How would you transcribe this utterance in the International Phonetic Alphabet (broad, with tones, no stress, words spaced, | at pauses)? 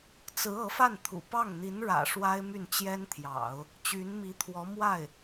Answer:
t͡sɹ̩˧˥ ɤ˧˥fa˥˩nt̪ʰṵ˨˩ pɑ˥˩ŋ n̪i˧˥nɻä̰˨˩ ʂwa˥ɪ̯my˥˩nt͡ɕjɛ˥nt̪ʰjɑ̰˨˩˦ʊ̯ | t͡ɕy˧˥nmi˧˥t̪ʰwɔ˧˥ mwa˥˩ɪ̯